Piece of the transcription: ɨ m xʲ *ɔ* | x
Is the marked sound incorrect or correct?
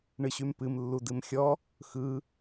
correct